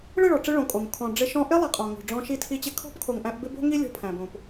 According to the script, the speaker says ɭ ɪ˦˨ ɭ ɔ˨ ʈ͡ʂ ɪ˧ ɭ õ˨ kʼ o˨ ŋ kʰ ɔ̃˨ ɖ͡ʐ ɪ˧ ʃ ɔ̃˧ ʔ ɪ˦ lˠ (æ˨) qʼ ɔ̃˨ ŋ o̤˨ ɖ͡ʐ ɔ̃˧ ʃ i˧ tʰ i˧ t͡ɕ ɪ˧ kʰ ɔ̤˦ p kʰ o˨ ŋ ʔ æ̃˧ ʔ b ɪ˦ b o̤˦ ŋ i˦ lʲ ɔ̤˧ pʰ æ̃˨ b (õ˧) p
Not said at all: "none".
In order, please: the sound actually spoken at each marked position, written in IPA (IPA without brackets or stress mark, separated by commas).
æ˨, õ˨